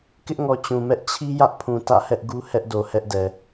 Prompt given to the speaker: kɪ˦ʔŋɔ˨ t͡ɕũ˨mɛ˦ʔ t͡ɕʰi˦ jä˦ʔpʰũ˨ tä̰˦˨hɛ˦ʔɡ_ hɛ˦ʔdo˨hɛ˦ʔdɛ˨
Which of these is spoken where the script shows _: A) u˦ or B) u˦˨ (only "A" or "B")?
A